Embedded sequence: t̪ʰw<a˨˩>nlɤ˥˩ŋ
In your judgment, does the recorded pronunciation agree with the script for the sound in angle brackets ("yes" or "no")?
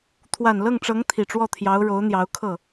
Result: yes